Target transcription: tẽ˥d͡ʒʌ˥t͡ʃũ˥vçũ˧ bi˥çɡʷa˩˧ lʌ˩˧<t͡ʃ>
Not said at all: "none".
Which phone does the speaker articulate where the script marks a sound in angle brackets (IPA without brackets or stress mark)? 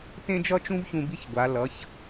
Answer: ç